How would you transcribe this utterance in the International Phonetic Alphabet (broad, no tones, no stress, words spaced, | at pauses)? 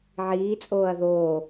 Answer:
ʕiːt͡sʼoːɐ̯ ðoː